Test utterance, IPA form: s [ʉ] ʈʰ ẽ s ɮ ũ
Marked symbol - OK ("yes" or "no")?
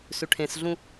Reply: yes